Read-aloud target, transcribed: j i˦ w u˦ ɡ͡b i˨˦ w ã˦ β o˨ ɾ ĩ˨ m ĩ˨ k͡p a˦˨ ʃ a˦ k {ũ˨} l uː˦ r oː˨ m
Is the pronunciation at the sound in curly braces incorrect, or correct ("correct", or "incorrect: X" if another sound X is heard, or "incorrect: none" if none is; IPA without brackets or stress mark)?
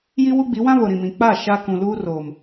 correct